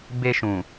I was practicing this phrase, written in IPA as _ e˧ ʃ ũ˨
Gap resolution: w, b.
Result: b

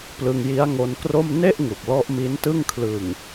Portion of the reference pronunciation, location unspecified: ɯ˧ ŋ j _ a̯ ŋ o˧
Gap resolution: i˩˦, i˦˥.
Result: i˦˥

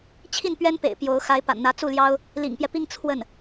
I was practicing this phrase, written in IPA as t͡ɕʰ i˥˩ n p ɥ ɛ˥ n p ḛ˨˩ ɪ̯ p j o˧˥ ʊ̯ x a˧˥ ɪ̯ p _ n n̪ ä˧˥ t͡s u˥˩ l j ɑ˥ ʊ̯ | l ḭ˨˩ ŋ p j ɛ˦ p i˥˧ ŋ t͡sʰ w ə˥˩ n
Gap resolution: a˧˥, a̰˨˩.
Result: a̰˨˩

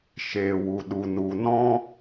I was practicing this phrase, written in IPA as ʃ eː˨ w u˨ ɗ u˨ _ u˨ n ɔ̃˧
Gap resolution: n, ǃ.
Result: n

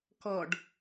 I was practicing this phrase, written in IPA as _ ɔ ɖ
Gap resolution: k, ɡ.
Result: k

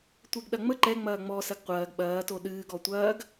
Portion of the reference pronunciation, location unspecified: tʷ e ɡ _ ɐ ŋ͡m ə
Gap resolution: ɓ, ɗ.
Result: ɗ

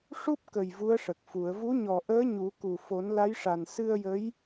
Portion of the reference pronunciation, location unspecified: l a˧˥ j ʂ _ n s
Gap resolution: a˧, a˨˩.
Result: a˨˩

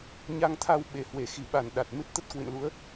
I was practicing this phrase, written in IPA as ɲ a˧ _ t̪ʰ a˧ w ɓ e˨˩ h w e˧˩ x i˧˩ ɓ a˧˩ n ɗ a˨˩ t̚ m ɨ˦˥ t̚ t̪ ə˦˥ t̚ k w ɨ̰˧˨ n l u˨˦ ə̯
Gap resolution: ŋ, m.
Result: ŋ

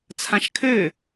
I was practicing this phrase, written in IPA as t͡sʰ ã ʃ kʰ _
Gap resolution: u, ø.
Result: ø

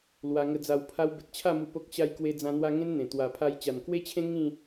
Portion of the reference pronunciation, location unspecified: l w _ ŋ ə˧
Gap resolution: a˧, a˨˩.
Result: a˧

